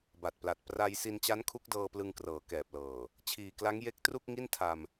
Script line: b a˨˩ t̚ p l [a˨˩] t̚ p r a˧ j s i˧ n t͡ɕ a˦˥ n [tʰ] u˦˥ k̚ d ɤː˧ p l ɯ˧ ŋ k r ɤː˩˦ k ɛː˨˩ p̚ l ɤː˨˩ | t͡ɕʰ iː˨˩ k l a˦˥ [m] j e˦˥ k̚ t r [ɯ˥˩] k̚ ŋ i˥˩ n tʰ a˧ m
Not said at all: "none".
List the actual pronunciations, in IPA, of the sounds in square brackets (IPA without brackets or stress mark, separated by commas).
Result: a˨˩, kʰ, ŋ, u˥˩